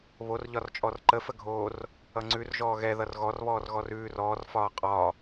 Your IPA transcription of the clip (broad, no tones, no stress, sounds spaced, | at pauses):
β o r ʎ ɒ r t͡ʃʼ ɔ r ǃ ə f ə ɡʱ oː r | ʌ ŋ͡ǀ ʉ r ʒ ɔː ɣ ɛ ð ʌ r ɣ ɔ r β ɔː r ɣ ɔ r ʉː r ɔː r f ɒː qʼ ɒ